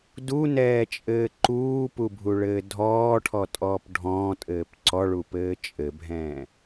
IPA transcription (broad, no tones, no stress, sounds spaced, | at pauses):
d u n ɛː t͡ʃʼ ɘː ǃ uː p u bʱ u ɭ ɘː dʱ ɔː ʈʰ ɔ tʼ ɔː p ɖʱ ɔ̃ː tʼ ɘː p ǀ ɔ ɭ u p ɘː t͡ʃʼ ɘ bʱ ɛ̃ː